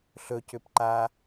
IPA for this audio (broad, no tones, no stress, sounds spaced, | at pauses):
ɬ ɵ c ʏ p ǃ a